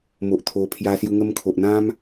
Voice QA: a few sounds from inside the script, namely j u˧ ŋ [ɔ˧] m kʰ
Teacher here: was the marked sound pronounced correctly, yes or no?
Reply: no